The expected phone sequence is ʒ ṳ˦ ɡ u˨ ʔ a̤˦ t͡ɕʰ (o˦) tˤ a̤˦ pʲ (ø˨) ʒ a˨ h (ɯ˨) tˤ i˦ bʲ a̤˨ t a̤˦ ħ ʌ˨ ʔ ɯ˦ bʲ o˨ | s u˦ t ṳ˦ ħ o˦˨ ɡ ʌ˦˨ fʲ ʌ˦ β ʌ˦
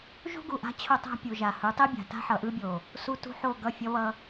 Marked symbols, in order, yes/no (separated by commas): yes, no, no